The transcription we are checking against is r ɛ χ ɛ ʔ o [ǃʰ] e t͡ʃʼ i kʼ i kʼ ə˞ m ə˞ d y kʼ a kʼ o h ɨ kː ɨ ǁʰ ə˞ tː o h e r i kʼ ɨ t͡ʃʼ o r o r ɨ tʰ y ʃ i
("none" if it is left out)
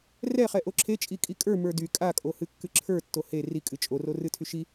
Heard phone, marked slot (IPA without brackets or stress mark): ǁʰ